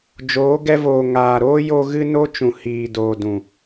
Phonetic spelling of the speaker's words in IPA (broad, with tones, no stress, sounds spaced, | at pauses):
d͡ʒ oː˨˦ ɡ ɛ˧ v oː˨ ŋ aː˨ ɾ oː˦ j o˧ ɣ ɨ˧ n o˧ t͡ʃ ũ˨ h iː˨ d oː˨ d ũ˨